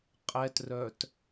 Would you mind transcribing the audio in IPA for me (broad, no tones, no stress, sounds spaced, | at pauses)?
qʼ ɛ t r œ t